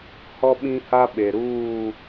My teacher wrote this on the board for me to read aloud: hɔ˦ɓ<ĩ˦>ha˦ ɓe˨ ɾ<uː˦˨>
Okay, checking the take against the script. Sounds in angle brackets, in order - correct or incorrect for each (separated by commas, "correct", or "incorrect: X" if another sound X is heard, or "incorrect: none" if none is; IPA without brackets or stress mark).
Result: correct, correct